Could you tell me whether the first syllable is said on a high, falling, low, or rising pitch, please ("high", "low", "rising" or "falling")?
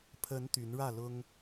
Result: rising